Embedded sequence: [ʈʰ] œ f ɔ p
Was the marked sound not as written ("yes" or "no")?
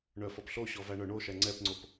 yes